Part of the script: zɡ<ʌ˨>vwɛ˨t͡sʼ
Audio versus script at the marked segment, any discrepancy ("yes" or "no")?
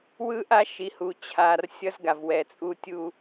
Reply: yes